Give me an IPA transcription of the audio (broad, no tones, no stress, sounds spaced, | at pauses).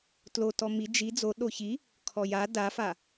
t l o t ɔ m i d͡ʒ i d͡z o ɗ o ç i | kʰ ɔ j a d a f a